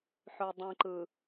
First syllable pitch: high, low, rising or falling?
low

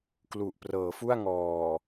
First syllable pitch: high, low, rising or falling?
low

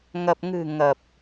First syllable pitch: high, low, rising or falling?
low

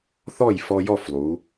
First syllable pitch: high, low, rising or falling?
falling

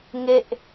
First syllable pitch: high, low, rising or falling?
falling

